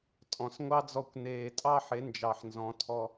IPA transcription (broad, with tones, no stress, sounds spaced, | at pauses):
tʼ ɔ̃˨ s ŋʷ ɑ˦ d͡z ɔ˧ kʷ n eː˨ tʼ ɑ˦ ħ e˨˦ n d͡ʒ ɑ˨ ħ n z ɔ̃˨˦ tʰ ɔ˧